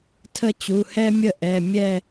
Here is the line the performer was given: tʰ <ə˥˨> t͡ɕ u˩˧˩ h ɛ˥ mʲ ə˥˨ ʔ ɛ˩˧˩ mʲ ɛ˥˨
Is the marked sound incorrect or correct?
correct